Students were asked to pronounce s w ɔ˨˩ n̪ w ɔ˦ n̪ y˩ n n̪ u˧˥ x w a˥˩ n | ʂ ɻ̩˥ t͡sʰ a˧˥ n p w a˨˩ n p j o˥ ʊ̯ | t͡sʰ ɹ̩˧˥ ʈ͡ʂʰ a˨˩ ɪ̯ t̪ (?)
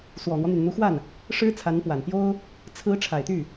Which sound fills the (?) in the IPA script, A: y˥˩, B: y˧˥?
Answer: A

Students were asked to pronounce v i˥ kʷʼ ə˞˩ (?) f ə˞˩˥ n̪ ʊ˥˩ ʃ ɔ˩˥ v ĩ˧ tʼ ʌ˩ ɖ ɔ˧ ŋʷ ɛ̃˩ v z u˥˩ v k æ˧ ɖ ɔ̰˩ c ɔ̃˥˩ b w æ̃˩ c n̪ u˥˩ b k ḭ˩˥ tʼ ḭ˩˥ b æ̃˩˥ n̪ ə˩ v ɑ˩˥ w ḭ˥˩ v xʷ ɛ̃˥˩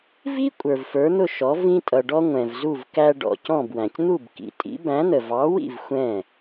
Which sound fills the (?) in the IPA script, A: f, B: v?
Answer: B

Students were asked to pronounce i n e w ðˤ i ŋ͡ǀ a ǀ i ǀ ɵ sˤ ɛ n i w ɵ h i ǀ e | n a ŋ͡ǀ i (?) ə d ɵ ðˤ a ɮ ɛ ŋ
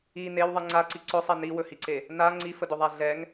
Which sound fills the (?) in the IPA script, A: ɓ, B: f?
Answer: B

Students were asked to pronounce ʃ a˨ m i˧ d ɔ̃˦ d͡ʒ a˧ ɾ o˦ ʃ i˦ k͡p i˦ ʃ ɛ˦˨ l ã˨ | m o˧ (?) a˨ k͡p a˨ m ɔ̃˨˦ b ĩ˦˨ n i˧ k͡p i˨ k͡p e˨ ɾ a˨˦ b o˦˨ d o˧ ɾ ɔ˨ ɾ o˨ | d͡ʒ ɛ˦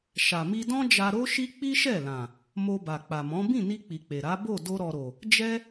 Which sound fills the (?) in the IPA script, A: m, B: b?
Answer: B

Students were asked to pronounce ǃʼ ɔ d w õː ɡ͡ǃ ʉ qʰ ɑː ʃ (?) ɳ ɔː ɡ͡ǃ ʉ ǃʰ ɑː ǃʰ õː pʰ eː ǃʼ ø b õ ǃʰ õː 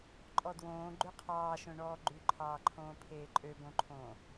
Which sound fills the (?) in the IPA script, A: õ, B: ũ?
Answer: A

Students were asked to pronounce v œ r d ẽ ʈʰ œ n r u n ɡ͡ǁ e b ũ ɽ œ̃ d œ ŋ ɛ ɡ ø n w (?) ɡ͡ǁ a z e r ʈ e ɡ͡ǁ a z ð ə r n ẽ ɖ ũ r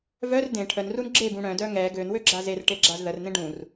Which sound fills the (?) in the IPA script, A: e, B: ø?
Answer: B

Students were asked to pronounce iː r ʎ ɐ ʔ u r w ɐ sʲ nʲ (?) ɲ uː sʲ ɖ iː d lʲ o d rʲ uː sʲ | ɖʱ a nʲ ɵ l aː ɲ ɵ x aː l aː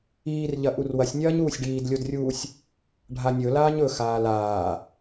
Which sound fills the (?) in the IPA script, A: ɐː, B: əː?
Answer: A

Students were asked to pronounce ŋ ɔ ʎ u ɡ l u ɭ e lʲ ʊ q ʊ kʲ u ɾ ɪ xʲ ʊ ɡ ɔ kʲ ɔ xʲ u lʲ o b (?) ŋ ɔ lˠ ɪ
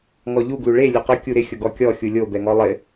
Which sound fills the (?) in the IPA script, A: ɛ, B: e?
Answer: A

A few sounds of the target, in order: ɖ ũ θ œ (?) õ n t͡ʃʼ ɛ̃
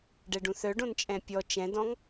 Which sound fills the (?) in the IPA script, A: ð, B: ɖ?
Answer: B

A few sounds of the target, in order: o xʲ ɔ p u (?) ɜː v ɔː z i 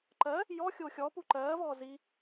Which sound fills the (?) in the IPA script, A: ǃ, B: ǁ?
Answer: A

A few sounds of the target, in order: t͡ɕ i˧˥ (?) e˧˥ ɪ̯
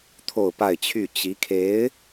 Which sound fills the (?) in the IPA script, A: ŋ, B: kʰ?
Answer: B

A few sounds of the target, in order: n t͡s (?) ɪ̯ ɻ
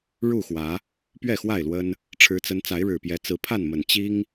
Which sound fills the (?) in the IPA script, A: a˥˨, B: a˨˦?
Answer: B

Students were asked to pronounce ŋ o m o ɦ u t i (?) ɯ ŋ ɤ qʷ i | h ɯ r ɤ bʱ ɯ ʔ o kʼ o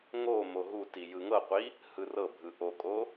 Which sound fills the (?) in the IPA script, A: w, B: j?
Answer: B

